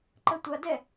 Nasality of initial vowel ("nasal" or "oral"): oral